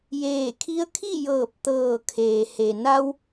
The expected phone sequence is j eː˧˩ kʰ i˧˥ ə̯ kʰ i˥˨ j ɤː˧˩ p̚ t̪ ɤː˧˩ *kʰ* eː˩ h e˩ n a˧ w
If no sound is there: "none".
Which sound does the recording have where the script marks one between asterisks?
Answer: kʰ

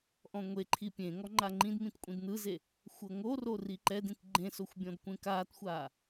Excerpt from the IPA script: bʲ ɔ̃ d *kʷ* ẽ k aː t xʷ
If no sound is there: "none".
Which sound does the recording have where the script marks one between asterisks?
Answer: kʷ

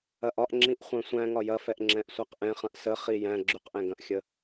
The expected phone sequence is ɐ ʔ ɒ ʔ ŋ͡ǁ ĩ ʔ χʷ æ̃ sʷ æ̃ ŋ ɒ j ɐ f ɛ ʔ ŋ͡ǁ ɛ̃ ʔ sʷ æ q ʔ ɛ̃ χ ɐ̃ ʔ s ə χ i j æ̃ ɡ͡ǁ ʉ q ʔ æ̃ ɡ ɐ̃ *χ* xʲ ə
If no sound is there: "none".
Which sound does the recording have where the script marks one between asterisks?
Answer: ʔ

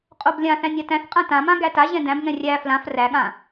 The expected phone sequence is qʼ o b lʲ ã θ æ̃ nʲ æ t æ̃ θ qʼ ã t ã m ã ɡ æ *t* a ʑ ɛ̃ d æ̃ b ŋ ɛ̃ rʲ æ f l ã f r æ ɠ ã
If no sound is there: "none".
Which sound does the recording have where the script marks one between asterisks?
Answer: t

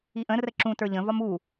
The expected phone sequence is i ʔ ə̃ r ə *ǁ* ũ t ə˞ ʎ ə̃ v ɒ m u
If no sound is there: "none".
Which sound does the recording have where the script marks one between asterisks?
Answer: ǁ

